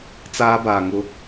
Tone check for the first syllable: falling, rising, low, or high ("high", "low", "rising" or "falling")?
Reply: high